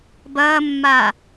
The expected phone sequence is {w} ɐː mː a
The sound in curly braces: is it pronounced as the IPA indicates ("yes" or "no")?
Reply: no